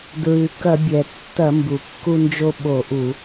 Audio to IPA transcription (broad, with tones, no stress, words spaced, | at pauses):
dɹɨ˩ kɐ˧˩˧bʲɛ˩ tːɐ˧˩˧mbu˩kːu˧nd͡ʒo˧ ɓo˧˩˧ʔu˧˩˧